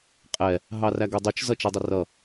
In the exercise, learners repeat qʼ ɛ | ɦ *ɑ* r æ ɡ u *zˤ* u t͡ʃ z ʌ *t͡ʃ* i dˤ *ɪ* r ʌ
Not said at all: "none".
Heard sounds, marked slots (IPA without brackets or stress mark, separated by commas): ɑ, dˤ, t͡ʃ, ɪ